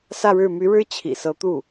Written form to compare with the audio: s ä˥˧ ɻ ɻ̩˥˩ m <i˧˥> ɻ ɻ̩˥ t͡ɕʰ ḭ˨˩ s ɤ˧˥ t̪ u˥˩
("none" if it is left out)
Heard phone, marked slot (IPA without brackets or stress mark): y˧˥